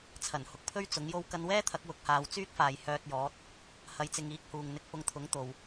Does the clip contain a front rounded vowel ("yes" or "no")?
yes